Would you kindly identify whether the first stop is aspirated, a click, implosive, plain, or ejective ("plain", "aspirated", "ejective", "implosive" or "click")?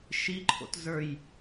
click